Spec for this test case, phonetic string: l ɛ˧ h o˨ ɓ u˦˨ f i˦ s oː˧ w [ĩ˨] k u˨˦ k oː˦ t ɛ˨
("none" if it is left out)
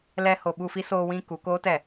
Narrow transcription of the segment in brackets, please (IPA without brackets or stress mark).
ĩ˧